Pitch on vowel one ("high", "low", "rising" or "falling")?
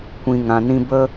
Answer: low